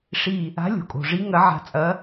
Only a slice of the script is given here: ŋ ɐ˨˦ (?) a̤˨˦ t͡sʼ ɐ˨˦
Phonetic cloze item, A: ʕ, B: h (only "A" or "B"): A